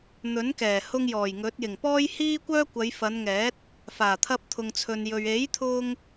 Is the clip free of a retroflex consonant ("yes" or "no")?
yes